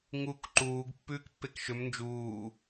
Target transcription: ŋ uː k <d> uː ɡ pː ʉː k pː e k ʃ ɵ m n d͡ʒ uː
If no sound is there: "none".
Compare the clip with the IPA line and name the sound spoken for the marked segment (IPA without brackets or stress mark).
ǃ